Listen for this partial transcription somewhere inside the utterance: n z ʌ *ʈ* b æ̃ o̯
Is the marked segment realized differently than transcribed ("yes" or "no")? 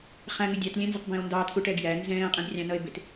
yes